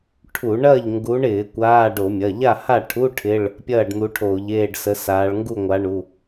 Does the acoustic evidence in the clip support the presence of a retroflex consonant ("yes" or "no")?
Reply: yes